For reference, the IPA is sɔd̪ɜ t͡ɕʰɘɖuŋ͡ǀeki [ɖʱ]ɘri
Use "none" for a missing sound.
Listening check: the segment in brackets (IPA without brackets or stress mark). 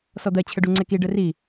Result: ɖ